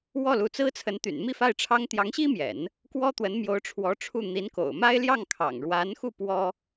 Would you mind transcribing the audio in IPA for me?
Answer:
w ɔ˥˩ l u˧˥ t͡s ɹ̩˥ t͡sʰ ə˧˥ n t̪ y̰˨˩ n m i˥˧ f a˥˩ ɪ̯ ʈ͡ʂʰ ɑ˥ ŋ t̪ j ɑ˧˥ ŋ ɕ i˥ m j ɛ̰˨˩˦ n | k w ɔ˥ t̪ w ə˧˥ n m j o˧˥ ʊ̯ ʈ͡ʂʰ w ɔ˧˥ ʈ͡ʂʰ u˥˩ n̪ i˧˥ n k o̰˨˩ ʊ̯ m a˥ ɪ̯ l j ɑ˥˩ ŋ kʰ ɑ̰˨˩ ŋ ɻ w a˧˥ n x u˥˩ p w ɔ˥

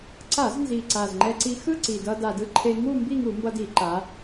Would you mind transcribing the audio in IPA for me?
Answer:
ǀ a˧˩˧ z n z i˨˩ ǀ a˨˩ z ŋ͡ǃ ɛ˧ ǀ i˧ x ɯ˥˧ ǀ i˨˩ d ʌ˧ d a˨˩ d ɯ˧ ǃʰ e˧ ŋ u˥˧ m b i˥˧ ŋ u˧˩˧ m b ʌ˧ d i˧˩˧ ǃ a˩˧

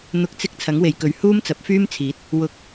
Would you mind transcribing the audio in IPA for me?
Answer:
n̪ ʊ˨˥ k̚ t͡s ɪ˧ k̚ t͡sʰ ɐ˨˥ ŋ w e˨ j k ɵ˨˥ ɥ h uː˥ m t͡s ɐ˨˥ p̚ f yː˥ m t͡sʰ iː˨˥ t̚ | w ʊ˨ k̚

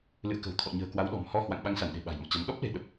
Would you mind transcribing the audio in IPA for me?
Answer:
l ɨ̰˧˨ ə̯ k ə̤˨˩ w t̪ʰ ɔ̰˧˨ ɲ ə̤ː˨˩ k w a˨˦ w ɗ ɔ̤˨˩ m h ɔ˧ h w a̰˧˨ ŋ ɓ a˨˦ ŋ s a˧˩ n ɗ e̤˨˩ ɓ a̤˨˩ j m ɔ̰˧˨ t͡ɕ a˨˦ n ɗ ɔ˦˥ p̚ l e̤˨˩ ɗ ə˨˩ p̚

